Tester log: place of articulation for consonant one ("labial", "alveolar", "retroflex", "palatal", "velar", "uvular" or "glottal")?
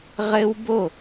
uvular